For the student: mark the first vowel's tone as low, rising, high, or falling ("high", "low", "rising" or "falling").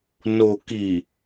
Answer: low